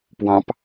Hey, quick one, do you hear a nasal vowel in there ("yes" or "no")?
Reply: yes